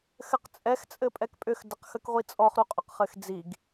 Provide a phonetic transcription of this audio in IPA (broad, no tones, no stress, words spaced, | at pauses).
xɘqt͡sʼɛx t͡sʼɘpʼɛkpʼʏx dəqxəkʁʷit͡sʼɔχ ɾuqʼʏqχɘxd͡ziɡ